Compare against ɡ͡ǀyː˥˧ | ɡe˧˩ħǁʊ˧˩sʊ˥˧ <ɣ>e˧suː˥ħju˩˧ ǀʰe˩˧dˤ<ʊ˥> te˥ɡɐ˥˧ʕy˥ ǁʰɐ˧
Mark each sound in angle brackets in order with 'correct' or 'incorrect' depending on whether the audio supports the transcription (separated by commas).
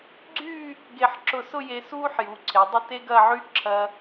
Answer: incorrect, incorrect